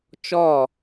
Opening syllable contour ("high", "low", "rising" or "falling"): falling